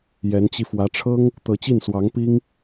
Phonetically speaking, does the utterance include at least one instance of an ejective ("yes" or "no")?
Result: no